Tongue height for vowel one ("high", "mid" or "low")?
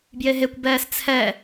mid